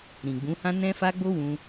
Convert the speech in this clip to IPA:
ɾĩ˨ɡ͡bũ˨˦hã˦ nɛ̃˦ fa˦ɡ͡bo˦wũ˧

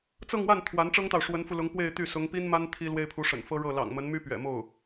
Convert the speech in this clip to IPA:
t͡sɤ˥˧ŋwa˥˩n t̪ʰwa˧˥nʈ͡ʂɤ˥ŋt̪ɑ˨ʊ̯ ʂwə˧˥nfu˧lʊ˧˥ŋ pwe˥˧ɪ̯t̪y˥˩ sʊ˧˥ŋ pi˥nma˥n t̪ʰi˥lwe˥ɪ̯pʰu˧˥ ʂə̰˨˩nfɤ˥ ɻɤ˥˩ lɑ̰˨˩ŋmə˧˥nmy˥ pɥɛ̰˨˩mo˥˩ʊ̯

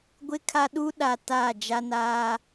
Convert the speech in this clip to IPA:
ɡʷɪ˦kʰa˦ɗu˦ɗa˨ taː˦˨d͡ʒa˦naː˦

